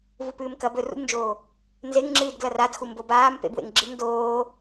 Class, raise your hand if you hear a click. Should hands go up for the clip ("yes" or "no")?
yes